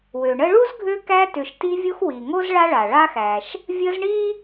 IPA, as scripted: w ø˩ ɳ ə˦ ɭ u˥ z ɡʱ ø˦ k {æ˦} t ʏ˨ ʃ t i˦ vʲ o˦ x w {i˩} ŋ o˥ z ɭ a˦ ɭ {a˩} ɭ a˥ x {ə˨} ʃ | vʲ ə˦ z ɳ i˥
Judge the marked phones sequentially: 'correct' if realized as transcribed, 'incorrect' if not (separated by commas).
correct, correct, correct, incorrect